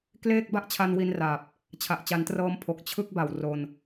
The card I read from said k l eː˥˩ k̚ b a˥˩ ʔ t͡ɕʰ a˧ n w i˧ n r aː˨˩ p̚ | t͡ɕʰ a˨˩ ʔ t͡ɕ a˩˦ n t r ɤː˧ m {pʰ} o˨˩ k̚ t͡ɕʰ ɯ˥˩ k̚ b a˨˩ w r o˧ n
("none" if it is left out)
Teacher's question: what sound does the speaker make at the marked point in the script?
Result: pʰ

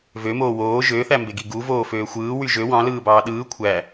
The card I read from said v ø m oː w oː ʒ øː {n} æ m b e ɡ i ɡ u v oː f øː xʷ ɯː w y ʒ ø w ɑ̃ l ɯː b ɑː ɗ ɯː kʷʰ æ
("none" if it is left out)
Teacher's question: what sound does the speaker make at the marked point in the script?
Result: θ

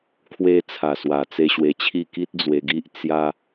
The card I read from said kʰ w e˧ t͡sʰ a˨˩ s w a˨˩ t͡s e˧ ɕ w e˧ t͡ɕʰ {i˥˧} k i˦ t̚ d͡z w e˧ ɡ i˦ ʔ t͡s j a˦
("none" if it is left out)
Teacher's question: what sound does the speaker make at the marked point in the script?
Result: i˥˧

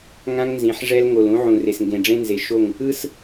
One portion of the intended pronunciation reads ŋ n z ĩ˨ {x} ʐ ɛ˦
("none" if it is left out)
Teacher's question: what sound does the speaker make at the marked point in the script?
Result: ħ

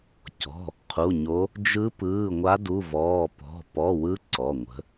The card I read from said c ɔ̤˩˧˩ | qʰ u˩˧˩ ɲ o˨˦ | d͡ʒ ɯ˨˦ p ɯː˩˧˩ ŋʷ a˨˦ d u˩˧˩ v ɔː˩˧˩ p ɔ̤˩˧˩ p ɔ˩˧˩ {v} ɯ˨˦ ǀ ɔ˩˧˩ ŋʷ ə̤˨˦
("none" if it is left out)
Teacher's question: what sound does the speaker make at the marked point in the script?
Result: w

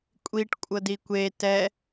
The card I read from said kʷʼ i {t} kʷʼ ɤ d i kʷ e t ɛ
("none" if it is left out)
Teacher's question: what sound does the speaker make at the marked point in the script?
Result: ʈ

